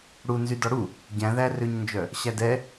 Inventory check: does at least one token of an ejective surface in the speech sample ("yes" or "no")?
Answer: no